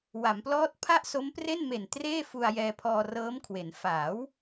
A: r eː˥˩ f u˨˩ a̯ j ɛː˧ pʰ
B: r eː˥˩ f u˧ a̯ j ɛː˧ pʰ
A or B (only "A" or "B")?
B